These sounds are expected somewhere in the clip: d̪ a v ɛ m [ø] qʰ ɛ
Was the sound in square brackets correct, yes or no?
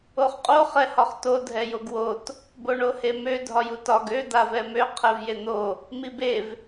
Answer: yes